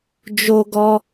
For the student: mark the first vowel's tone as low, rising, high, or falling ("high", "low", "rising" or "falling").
high